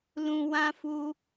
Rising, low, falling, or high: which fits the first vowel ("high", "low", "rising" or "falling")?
low